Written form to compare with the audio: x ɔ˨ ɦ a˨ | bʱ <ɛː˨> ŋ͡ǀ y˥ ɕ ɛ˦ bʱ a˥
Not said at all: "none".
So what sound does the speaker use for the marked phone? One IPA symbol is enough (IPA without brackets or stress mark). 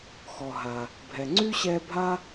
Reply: ɛ˨